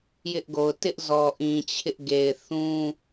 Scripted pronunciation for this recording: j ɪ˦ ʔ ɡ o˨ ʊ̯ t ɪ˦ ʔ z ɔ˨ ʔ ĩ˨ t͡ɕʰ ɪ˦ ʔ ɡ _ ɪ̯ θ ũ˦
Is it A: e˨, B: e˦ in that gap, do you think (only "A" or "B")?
A